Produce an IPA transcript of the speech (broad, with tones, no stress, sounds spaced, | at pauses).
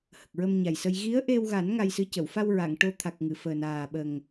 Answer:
h ə˨˩ k̚ ɹ ə˧ m ɲ a˨˩ j s ə˧ j ɣ i˧˥ ə̯ ʔ e˧ w ɣ a˨˩˦ n ŋ a˧ j s ɨ˧˥ c ə˨˩˨ w f a˧ w ɹ a˨˩˨ ŋ ʈ o˧ t̪ʰ a˨˩ k̚ ŋ ɨ˨˩˨ f əː˨˩ n aː˨˩ ɓ ə˨˩ ŋ